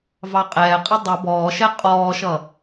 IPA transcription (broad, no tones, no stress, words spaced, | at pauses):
vɑqʼɛːqʼə dˤə bɔːʃɛ qʼɔːʃʌ